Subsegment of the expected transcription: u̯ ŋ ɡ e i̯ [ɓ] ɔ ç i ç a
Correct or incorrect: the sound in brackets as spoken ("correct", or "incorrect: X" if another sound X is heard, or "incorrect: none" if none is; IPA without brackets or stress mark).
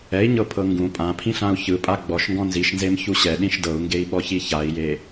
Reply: correct